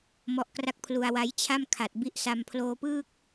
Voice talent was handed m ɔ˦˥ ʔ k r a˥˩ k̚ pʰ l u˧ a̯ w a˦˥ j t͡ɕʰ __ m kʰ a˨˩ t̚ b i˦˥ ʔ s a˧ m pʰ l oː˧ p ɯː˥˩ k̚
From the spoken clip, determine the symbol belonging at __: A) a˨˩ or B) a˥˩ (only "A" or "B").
B